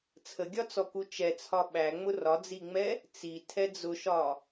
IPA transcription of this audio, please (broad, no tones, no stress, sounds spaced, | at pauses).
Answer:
t͡sʰ ə ɡʲ ɒ t͡s ɔ k u t͡ʃ ɛ t͡sʰ ɒ ɓ æ ŋ͡m ʊ r ɒ d͡z i ŋ͡m ɛ | t͡s i tʰ ɛ d͡z ʊ ʃ ɒ